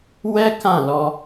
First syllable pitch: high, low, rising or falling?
high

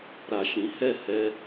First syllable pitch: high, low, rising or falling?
low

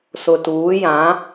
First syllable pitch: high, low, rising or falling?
low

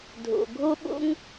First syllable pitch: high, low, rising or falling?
low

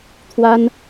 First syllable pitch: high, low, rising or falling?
high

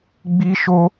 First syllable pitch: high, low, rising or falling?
high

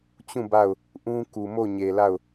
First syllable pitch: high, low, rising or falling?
falling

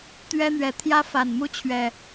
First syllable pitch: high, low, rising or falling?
high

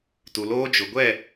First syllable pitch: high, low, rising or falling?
low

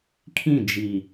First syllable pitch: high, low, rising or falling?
falling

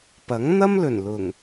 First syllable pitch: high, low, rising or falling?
rising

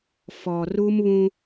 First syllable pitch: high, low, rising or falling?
low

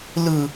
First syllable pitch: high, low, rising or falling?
high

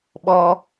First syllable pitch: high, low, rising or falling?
high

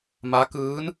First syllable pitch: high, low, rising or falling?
rising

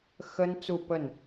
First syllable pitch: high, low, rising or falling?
high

